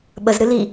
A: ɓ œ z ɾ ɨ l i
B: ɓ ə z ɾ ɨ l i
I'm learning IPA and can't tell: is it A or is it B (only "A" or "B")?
B